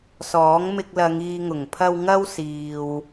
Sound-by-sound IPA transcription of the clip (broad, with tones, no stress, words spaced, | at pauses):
sɔː˨˥ŋmɪ˧k̚lɐ˨˧ŋ iː˨ŋʊ˨˩ŋpʰɐ˧w ŋɐ˧w siː˨w